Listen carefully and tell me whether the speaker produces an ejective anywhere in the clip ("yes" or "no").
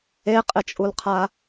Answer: yes